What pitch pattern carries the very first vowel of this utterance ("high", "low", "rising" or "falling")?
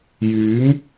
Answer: rising